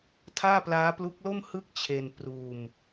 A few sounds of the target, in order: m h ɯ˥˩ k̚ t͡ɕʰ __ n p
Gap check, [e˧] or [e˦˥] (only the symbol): e˧